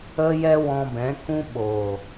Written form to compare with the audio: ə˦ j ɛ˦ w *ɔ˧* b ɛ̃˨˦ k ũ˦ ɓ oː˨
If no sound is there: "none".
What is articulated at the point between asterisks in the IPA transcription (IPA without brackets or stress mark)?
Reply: ɔ̃˧